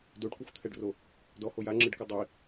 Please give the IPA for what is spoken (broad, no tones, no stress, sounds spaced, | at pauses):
d o ɖ kʷ ɯ xʷ t̪ʰ ɛ ɖ r o | d ɔ h o j a ŋ͡ǁ ɯ ɖ k u dˤ i